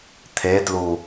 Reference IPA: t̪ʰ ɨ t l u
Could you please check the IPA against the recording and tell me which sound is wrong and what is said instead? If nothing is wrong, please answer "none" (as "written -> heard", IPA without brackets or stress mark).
ɨ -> e